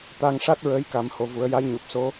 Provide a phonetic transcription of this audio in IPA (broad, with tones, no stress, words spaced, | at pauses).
t̪a˧ŋʂa˦˥t̚ ɹəː˧˥jka˨˩˦m ho˨˩vu˨˩˦ə̯ja˧˥jɲu˨˩p̚ so˧˥